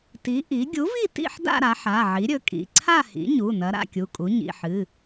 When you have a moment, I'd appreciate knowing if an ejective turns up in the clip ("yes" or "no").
yes